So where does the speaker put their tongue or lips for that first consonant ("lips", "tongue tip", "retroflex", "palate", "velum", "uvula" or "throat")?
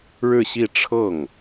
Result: retroflex